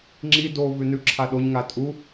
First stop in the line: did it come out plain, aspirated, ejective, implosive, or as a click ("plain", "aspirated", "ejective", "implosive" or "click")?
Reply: click